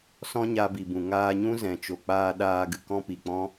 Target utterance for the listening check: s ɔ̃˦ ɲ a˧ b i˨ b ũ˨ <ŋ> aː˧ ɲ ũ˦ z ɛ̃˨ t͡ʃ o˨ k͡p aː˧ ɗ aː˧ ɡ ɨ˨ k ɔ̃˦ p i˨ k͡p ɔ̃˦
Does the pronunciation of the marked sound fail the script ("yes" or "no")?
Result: no